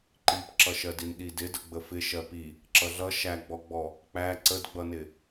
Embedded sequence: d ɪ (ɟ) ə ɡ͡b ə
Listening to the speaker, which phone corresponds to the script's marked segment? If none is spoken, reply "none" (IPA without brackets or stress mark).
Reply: d